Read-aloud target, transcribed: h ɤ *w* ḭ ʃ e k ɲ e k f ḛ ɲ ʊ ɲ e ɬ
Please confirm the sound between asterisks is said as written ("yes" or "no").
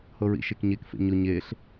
no